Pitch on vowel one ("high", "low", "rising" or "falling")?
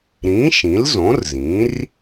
rising